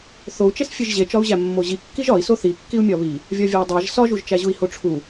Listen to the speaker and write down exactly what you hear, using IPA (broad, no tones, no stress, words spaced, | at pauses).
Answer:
θou̯t͡ʃes fʲeʒʑet͡ʃɒu̯ʑæ mːoʑi kːiʒɒi̯ soθikːiu̯ mʲɒβi | vʲɒvʲædˤæʒ sɒʒuʒt͡ʃæʑui̯ hoʈ͡ʂʰu